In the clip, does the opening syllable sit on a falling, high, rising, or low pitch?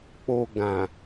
low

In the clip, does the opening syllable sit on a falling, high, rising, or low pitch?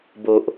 low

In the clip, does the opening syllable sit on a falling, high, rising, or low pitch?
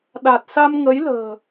low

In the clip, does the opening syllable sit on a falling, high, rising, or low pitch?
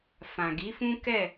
low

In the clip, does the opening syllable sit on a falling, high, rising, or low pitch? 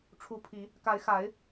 rising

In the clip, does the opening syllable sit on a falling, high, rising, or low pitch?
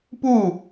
falling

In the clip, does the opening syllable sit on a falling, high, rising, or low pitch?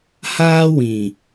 high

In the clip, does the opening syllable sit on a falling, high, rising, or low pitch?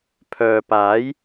low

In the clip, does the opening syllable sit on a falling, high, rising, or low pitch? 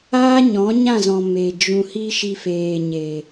high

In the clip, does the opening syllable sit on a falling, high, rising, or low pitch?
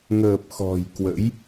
low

